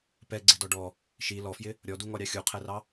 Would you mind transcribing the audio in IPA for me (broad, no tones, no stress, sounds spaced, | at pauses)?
p ɛ ɡ͡ǀ ɪ d ɔ ɖ ɔ | ʃ i l ɔ f j ɪ | ɾʲ ɔ d u ŋ ɔ ɾʲ ɑ xʲ u qʰ ɛ r ɑ